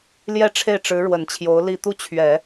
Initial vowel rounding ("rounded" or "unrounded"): unrounded